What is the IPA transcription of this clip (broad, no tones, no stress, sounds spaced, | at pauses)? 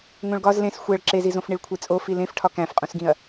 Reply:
ŋ õ ɭ ɡ ɒ z l ẽ s xʷ æ ɭ ǁ e z i z õ f ɳ i ɭ kʷʰ e t͡sʼ o f i l ẽ f ʈʰ ɒ k æ̃ f qʼ ũ s ɡ ĩ ɐ̯